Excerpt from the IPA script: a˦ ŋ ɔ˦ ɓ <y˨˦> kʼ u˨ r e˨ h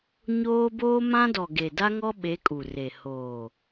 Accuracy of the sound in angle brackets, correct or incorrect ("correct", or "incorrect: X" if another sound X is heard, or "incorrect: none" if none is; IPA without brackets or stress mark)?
incorrect: e˨˦